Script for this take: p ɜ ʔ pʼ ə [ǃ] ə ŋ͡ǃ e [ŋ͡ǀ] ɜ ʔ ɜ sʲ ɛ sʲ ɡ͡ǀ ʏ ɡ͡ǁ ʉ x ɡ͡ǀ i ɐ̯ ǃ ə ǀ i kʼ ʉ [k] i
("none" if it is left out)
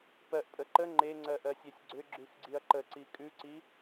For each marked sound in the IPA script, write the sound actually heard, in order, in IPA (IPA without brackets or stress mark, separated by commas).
ǃ, ŋ͡ǀ, ǀ